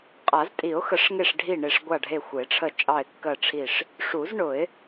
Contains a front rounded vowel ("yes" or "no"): no